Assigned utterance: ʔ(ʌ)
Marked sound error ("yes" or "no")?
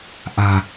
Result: yes